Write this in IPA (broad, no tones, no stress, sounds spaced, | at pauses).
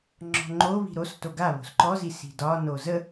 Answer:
ŋ͡ǁ ɔ̤ ŋ͡ǃ o β i̤ ɾ o s t o ɡ a β o̤ s ǃ ɔ z i s i̤ d ɒ n o z ə